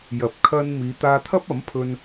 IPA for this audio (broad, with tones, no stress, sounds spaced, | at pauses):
j ɐ˨˥ p̚ kʰ ɐ˧ n m iː˨˧ t̪ aː˧ t̪ʰ ɐ˥ p̚ ɐ˨˥ m pʰ ɵ˧ n